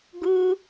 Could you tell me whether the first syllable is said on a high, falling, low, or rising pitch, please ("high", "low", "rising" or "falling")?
high